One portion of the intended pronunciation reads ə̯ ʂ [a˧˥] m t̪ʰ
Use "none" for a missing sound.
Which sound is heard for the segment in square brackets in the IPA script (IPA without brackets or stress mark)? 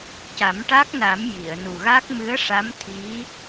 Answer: a˧˥